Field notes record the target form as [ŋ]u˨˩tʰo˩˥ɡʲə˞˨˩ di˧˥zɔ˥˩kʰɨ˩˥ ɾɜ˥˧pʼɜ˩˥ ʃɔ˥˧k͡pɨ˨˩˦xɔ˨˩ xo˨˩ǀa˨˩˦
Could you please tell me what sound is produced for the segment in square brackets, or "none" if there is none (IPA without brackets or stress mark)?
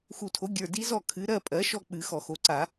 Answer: x